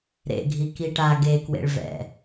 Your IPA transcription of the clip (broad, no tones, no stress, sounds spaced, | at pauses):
ɾ ḛ ɡʱ i k i ʈ a ɡ e k w ḛ ɭ v ɛ̰